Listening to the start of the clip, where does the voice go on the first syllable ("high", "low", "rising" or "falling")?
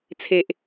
low